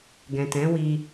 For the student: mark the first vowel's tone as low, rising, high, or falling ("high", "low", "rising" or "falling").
low